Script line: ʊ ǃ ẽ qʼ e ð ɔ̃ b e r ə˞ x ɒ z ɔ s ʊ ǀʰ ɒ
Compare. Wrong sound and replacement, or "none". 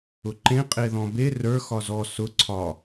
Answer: none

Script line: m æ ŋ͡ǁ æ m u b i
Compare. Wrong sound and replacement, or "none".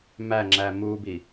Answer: none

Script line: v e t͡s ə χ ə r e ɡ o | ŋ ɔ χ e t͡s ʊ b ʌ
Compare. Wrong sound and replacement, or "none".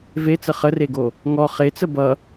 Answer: ʊ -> ə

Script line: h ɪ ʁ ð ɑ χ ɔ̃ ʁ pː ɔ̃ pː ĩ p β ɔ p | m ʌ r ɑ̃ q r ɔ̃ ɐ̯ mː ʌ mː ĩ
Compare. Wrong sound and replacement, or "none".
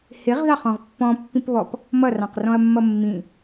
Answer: none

